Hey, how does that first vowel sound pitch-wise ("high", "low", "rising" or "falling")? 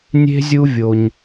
high